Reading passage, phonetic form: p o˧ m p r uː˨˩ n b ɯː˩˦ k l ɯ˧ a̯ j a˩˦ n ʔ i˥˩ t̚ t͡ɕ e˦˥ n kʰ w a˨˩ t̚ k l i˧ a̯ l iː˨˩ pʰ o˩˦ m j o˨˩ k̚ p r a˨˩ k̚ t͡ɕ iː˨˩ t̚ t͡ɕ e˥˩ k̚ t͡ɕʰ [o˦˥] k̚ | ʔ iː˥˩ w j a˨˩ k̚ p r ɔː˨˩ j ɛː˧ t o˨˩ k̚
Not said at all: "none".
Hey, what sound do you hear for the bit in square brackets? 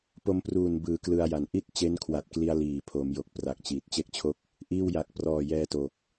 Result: o˥˩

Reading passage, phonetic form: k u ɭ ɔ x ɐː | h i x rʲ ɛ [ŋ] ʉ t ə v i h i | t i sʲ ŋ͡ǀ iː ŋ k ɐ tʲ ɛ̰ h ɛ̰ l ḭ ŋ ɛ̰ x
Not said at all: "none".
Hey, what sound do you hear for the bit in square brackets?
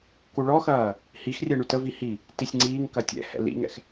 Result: ɳ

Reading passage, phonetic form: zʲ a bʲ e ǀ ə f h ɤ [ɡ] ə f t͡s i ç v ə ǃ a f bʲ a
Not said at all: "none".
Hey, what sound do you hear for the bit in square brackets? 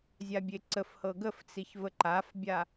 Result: ɡ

